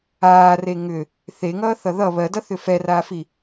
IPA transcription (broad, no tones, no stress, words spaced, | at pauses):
aːre ŋʏ | θeŋʌːθʌ ðʌ βɜdʌθʏ fɛraːfi